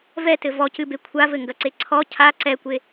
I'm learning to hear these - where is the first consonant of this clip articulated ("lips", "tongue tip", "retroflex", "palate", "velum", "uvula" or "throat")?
lips